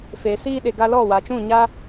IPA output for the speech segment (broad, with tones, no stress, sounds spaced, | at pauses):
f e˨ s iː˧ ɗ e˨ ɡ a˧ l ɔ˦˨ w a˨ t͡ʃ ũ˦˨ ɲ a˦